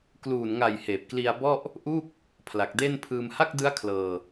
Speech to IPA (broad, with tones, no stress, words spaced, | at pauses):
kluː˨˩nŋa˨˩j heː˨˩p̚kli˧a̯ bɔ˥˩ʔ | ʔu˥˩k̚ | pʰla˨˩k̚de˥˩npʰɯː˧m ha˥˩k̚dɯ˦˥a̯ kʰlɤː˧